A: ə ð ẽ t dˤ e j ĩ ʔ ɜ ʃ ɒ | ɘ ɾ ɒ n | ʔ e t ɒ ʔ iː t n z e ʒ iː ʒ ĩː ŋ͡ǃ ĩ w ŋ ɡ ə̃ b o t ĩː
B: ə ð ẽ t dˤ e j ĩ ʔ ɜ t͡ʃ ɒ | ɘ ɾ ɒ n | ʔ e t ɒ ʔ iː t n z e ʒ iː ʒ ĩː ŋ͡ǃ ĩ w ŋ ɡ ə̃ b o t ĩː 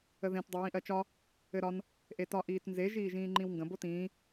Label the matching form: B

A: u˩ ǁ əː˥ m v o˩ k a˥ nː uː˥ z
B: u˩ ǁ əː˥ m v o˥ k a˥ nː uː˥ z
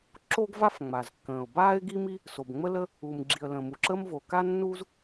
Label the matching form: A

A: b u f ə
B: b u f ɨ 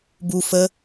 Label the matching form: A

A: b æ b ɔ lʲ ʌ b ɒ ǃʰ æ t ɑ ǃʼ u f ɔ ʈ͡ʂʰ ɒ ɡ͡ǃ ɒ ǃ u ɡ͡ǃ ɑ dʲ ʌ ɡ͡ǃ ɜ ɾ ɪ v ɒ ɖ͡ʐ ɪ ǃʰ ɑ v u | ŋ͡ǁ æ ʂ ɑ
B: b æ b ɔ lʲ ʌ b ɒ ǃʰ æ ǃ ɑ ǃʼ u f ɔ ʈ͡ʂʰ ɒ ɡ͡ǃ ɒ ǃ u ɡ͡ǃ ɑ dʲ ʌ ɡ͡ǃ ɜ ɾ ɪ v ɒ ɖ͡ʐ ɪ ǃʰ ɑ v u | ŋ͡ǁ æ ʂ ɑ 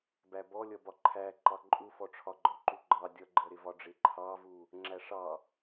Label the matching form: B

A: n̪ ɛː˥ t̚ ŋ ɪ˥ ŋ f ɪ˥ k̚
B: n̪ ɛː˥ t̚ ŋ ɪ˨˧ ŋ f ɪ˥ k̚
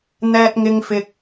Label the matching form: A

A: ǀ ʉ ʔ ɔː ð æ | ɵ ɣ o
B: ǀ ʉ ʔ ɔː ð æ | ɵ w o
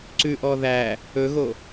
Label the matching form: A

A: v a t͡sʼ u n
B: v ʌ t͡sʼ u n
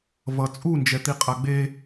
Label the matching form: B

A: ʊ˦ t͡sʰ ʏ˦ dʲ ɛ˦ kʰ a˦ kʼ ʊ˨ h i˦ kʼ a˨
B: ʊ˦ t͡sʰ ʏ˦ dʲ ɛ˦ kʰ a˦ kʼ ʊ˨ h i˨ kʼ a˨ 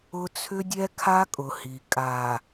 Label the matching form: B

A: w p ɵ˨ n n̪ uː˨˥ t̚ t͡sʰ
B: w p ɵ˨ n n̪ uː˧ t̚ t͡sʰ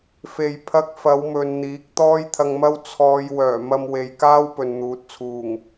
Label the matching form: A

